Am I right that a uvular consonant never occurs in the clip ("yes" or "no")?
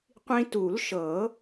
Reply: no